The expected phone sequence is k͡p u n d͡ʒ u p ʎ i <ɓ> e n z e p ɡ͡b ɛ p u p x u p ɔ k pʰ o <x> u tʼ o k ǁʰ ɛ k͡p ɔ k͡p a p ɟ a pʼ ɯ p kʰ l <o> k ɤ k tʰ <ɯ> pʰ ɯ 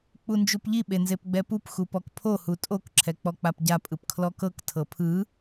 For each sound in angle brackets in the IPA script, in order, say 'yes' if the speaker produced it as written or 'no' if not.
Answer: yes, no, no, no

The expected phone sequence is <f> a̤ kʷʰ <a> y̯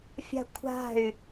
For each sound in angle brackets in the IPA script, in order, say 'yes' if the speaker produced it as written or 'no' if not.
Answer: no, no

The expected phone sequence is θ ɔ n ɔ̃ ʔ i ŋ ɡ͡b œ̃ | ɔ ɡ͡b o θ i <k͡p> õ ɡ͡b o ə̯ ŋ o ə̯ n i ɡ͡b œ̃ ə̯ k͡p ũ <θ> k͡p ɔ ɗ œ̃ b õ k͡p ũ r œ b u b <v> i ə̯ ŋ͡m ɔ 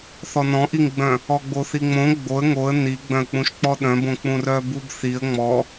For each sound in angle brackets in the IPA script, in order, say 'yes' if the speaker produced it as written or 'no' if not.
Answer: no, no, no

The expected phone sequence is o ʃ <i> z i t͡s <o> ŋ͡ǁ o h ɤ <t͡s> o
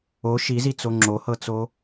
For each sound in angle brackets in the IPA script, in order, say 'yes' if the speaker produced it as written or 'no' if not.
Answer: yes, yes, yes

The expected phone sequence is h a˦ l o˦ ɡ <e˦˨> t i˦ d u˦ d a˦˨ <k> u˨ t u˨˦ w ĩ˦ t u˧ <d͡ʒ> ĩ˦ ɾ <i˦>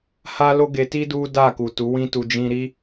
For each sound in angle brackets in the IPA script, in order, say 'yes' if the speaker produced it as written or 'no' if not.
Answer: no, yes, yes, yes

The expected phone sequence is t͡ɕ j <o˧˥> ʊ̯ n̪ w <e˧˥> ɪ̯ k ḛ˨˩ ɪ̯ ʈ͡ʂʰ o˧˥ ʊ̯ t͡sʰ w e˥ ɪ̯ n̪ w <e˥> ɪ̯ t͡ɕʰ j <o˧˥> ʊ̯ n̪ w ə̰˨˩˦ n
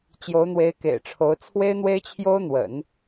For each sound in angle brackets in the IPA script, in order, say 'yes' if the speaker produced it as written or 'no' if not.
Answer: yes, yes, yes, no

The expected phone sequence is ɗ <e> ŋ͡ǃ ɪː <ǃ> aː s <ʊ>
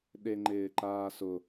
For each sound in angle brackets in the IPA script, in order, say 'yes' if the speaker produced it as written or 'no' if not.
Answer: yes, yes, yes

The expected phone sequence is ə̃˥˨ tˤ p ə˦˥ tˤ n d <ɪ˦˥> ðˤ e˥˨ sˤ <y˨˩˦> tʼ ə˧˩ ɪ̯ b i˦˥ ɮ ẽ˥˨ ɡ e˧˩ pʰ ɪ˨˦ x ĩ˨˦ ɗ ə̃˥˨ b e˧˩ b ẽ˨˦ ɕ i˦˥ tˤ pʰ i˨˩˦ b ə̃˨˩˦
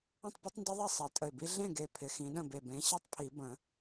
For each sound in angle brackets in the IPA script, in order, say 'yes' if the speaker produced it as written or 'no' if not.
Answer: yes, no

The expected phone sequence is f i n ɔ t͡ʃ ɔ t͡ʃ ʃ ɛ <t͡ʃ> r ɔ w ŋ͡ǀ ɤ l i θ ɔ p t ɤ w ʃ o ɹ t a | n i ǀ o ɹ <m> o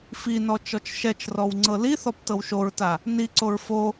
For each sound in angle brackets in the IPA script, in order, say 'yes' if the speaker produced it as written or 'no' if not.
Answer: yes, no

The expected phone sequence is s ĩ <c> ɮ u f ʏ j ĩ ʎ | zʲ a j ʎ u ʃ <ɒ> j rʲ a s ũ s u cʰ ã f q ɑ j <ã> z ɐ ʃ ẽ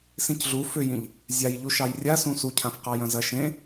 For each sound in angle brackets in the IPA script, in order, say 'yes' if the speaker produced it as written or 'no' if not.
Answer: yes, no, no

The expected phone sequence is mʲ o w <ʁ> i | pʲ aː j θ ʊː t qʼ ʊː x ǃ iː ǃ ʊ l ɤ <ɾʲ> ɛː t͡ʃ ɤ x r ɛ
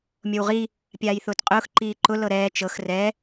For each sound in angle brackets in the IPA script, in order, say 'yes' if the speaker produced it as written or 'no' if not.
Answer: yes, no

